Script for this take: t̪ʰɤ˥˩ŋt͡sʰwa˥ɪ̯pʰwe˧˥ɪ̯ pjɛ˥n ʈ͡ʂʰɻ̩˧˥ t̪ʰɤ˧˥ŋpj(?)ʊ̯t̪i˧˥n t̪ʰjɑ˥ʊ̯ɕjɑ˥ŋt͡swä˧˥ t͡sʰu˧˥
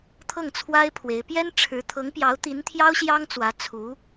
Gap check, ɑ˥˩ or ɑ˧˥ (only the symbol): ɑ˧˥